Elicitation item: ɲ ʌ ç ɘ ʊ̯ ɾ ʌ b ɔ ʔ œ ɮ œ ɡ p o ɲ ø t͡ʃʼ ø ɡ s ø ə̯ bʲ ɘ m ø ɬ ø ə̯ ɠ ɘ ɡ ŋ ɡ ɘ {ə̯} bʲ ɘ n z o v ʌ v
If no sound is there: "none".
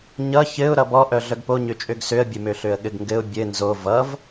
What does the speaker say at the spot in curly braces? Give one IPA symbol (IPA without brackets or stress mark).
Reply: ʊ̯